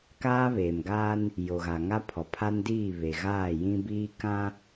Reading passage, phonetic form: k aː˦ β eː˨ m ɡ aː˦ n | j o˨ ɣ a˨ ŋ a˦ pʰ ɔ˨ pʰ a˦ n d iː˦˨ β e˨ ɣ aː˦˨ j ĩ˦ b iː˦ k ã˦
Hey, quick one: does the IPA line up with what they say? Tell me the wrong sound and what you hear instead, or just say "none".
none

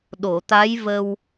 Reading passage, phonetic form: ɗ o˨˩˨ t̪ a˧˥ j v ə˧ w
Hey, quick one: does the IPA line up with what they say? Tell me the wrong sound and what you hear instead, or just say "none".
none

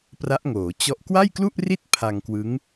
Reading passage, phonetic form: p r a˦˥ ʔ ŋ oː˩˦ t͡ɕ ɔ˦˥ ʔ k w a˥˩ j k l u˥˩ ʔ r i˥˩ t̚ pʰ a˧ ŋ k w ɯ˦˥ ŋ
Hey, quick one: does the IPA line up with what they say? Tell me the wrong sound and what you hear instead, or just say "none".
none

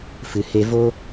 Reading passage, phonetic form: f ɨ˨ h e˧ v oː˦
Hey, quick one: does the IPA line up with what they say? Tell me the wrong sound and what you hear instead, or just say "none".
none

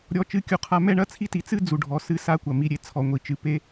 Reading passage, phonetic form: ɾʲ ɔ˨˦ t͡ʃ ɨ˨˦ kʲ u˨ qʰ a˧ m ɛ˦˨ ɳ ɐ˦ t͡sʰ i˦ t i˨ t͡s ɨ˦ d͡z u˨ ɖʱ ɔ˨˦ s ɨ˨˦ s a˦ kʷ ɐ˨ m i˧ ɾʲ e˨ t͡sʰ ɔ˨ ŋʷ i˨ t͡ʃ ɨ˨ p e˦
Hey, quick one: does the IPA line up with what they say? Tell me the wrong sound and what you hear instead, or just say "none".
none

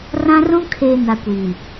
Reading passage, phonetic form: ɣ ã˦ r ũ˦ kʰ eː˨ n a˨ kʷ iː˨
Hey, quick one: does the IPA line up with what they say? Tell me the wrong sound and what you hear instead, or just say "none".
ɣ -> r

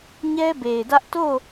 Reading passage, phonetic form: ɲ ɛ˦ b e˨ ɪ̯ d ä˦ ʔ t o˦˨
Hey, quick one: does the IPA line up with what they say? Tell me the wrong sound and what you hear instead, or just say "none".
none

